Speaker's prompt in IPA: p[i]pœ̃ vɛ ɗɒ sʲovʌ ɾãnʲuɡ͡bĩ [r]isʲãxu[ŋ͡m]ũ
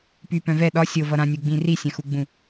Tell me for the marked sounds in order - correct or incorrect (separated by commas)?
incorrect, correct, incorrect